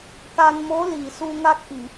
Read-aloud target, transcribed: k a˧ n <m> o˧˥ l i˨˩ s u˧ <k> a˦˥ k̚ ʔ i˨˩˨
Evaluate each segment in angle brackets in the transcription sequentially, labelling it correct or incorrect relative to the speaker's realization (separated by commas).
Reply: correct, incorrect